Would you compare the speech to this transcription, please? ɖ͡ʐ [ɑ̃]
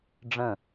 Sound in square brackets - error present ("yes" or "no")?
yes